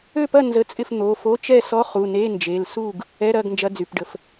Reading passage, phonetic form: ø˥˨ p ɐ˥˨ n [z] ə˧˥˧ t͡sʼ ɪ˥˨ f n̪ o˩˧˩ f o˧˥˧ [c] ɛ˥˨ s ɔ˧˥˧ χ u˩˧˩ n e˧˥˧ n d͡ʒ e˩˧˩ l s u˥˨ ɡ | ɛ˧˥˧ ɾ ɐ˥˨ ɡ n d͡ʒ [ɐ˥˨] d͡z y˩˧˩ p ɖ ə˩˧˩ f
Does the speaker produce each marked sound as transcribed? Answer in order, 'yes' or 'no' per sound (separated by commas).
yes, no, no